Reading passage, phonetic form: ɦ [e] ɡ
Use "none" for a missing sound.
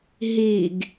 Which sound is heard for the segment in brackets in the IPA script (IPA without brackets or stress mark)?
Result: i